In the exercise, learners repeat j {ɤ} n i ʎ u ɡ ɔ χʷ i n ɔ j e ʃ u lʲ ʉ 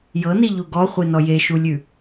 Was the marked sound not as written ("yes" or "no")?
no